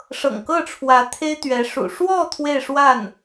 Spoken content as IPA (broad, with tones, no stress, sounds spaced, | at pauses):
ʂ ɤ̰˨˩ ŋ k ɤ˥˩ ʈ͡ʂʰ w ä˧˥ t̪ʰ e˥ ɪ̯ t̪ ɥ ɛ˧˥ ʂ ṵ˨˩ ʂ w ɔ˥˧ t̪ʰ w e˥˧ ɪ̯ ʂ w a˥˩ n